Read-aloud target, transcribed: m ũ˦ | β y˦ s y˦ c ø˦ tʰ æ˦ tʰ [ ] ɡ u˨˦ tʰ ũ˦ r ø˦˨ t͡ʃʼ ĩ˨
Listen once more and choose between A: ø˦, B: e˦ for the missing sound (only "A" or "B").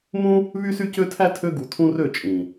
A